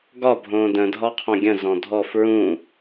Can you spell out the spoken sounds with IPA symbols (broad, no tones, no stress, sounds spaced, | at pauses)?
ɡ ɒ bʱ õ d ə̃ dʱ ɒ qʰ õ ɡʲ ə̃ z ɔ̃ dʱ ɔ f ɹ ũ